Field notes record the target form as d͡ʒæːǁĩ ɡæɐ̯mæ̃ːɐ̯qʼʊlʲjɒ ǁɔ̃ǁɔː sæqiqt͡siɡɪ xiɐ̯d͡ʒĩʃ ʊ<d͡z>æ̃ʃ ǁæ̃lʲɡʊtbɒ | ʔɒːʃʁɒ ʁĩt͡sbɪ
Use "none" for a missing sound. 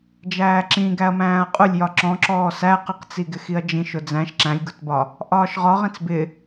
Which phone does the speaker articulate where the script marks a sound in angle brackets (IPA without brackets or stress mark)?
d͡z